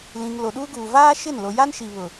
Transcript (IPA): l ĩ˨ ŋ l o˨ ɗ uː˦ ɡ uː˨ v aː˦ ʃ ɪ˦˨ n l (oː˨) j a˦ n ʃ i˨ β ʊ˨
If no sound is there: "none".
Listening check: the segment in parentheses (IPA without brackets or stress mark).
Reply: o˨